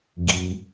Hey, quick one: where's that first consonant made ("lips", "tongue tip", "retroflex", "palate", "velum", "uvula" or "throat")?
velum